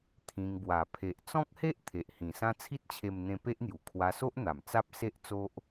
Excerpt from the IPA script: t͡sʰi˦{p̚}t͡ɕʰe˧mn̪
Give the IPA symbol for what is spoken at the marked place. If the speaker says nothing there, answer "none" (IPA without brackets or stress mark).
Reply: t̚